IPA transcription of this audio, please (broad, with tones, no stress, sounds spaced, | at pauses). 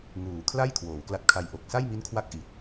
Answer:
ŋ uː˩˦ kʰ l a˥˩ j kʰ w oː˩˦ w k l a˦˥ t̚ kʰ a˧ j ʔ o˨˩ k̚ s a˥˩ j m i˦˥ n kʰ w a˦˥ k̚ ʔ i˨˩ t̚